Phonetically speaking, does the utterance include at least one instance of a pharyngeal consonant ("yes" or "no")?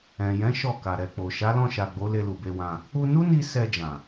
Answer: no